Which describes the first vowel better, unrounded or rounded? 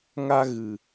unrounded